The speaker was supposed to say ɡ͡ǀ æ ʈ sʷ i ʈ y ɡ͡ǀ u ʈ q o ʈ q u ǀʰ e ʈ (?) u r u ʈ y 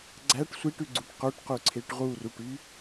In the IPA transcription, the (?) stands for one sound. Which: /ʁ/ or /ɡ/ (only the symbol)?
ʁ